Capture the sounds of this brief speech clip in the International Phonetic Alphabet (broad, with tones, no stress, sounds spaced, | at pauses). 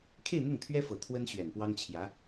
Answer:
kʰ e˥˧ ɪ̯ n̪ ʊ˥˩ ŋ t̪ʰ ɥ ɛ˥ f ɤ˨˩ t̪ʰ w ə˥ n ɕ ɥ ɛ˨˩ n p w ɑ˥ ŋ t͡ɕʰ j ä˧˥